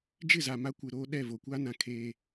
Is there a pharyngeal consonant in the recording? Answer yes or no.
no